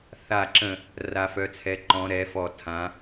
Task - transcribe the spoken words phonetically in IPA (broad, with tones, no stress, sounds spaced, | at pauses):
θ a˧˩ ǁ ə̃˧˩ | r a˨˦ f œ˨˦ t͡sʰ ɛ˨˦ ǃ ɔ̃˨˦ ɾ ɛ˨˦ f ɔ˧˩ tʰ ã˨˦